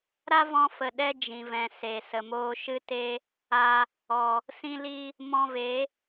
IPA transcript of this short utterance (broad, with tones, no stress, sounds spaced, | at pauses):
ɾ a˦ v ɔ̃˧ f ə˨ ɗ ɛ˧ d͡ʒ ĩ˨ v ɛ̃˨ s e˨ s ə˨ m oː˧ ʃ ɨ˧ t e˧ | a˧ | ɔ˨ | s ĩ˧ l i˧ | m ɔ̃˧ v e˨˦